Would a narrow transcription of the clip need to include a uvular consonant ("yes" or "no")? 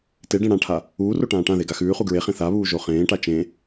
yes